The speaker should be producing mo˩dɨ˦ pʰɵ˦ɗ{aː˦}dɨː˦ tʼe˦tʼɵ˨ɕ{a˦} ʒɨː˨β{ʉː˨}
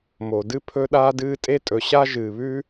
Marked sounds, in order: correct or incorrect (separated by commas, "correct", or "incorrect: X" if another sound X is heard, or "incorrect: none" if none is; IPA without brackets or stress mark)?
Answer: correct, correct, incorrect: ʉː˥